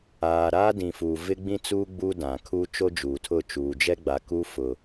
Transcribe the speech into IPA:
aː˨ ɾ aː˦ d ĩ˨ f uː˨ v ɪ˦ ɡ͡b ĩ˦ t͡s uː˦ ɡ͡b uː˦ d ã˨ kʰ u˦ t͡ʃ o˦ d͡ʒ uː˨ tʰ ʊ˦˨ t͡ʃ uː˨ d͡ʒ ɛ˦ ɡ͡b a˨ k u˦ f ʊ˨

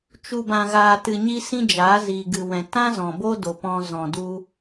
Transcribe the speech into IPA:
t͡ʃ u˨ b ã˨ ɣ aː˨ t ɨ˨ ɲ i˧ s ĩ˧ d͡ʒ aː˨˦ z iː˨ ɡ ɨ˨ w ɛ̃˨ t ã˦ z ɔ̃˨ b o˦ d o˨ p ɔ̃˧ z ɔ̃˨ d u˧

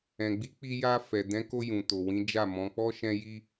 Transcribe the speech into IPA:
ɛ̃˨ ɡ͡b i˨˦ k͡p i˧ j a˧ f ɛ˨ d ɛ̃˨˦ k o˧ j ũ˨ t o˨ w ĩ˨˦ d͡ʒ a˦˨ m ɔ̃˨˦ k͡p ɔ˧ ʃ ɛ̃˧ j i˦

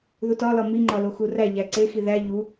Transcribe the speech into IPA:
ð u t ɒ l ɒ m i ŋ͡ǃ ɒ l o x u r æ ʎ æ ǀ e x i ð æ ʎ u

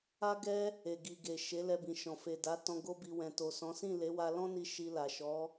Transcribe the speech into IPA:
a˦ ɡ ɛ˦ | e˨ ɡ i˨ ɡ e˨ ʃ e˨˦ l ɛ˧ b ĩ˨ ʃ ɔ̃˨ f e˨ d a˨˦ t ɔ̃˧ ɡ o˦ b i˧ w ɛ̃˨ t o˨ s ɔ̃˨˦ s ĩ˦˨ l e˨˦ w a˧ l ɔ̃˦ n i˦ ʃ i˧ l a˨ ʃ ɔ˨˦

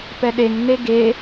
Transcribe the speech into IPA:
p ɛ ɗ e ŋ n e ɡ e

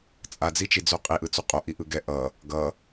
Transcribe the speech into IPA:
t͡sʼ a d͡z i t͡ʃ i d͡z o qʼ i ʔ ɯ t͡s u qʼ o ʔ i ʔ ɯ ɡ ɛ ʔ ʌ | ɡ ʌ

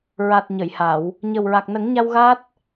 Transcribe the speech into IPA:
ɹ a˨˩ t̚ ɲ ə˨˩˨ j h a˨˩˨ w | ɲ ə˨˩ w ɹ a˨˩ k̚ n ə˨˩˦ ŋ ɲ a˧ w ɣ a˦˥ t̚

